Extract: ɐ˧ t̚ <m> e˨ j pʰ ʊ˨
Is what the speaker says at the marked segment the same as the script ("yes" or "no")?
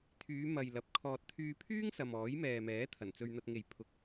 no